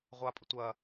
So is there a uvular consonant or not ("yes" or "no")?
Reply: yes